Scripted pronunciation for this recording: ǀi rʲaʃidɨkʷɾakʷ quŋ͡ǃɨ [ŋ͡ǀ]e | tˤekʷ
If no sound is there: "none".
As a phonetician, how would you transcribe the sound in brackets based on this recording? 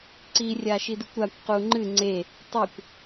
ŋ͡ǀ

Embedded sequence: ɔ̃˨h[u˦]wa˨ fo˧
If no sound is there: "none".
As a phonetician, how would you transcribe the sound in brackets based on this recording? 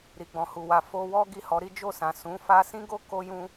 u˨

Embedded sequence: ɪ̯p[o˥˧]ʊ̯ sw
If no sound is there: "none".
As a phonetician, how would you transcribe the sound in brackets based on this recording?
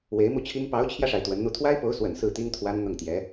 o˧˥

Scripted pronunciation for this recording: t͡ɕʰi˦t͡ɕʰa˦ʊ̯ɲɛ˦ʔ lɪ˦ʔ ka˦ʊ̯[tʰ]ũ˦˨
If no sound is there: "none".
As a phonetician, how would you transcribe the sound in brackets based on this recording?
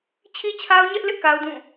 d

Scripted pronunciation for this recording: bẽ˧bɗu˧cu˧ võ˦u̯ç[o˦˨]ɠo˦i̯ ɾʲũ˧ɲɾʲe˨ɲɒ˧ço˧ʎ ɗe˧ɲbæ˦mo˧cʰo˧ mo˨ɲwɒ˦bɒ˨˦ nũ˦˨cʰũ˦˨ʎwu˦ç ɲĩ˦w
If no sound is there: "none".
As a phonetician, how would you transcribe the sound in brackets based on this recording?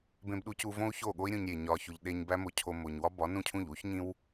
o˦˨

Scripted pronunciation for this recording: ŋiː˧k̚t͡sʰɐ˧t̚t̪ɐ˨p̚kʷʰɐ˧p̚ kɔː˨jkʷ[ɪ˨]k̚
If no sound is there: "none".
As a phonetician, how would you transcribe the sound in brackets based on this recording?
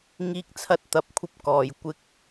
ɪ˧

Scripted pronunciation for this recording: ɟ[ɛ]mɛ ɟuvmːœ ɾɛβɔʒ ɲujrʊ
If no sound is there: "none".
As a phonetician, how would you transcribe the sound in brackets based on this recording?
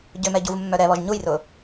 ʏ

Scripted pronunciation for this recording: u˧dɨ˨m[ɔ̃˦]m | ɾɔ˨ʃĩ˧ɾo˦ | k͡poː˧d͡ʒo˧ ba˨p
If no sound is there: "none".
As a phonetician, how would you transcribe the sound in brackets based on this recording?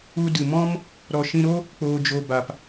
ɔ̃˦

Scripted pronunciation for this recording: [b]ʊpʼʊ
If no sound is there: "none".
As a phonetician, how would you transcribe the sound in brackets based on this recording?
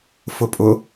f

